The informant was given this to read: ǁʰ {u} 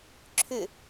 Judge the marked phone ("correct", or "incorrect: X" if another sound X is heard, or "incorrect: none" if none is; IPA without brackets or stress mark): incorrect: ʏ